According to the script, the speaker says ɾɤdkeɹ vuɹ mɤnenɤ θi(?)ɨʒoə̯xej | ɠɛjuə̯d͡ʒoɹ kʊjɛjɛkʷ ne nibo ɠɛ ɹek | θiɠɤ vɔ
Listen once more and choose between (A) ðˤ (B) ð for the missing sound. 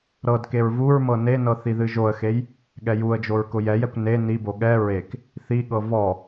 B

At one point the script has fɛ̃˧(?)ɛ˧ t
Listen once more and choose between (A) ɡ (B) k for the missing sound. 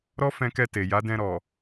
B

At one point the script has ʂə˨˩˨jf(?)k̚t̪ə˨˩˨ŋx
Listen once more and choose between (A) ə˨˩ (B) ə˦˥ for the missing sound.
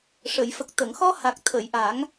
A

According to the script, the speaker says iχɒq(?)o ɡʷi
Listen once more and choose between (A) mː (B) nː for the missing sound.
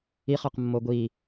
A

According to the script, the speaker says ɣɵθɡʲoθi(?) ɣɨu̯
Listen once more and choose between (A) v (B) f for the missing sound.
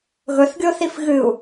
B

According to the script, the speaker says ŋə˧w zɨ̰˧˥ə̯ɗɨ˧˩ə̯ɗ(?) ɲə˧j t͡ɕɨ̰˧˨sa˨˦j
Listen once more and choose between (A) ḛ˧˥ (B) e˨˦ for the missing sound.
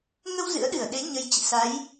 B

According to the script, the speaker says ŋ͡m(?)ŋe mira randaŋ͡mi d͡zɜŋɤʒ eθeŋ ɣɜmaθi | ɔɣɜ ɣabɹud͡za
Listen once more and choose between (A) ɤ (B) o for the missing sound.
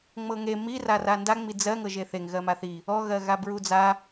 A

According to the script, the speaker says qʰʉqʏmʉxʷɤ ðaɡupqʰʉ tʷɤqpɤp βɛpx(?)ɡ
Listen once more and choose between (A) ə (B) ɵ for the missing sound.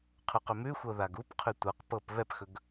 B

